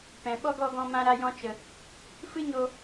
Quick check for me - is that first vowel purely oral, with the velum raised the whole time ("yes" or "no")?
no